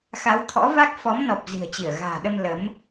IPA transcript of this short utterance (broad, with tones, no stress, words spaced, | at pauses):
xa˨˦wt̪ʰɔ̰˧˥va˦˥k̚ fɔ˨˦mnɔ˨˩p̚ zi̤˨˩ə̯t͡ɕi˧˩ə̯ɣa̤ː˨˩ɗə˧m lə˨˦m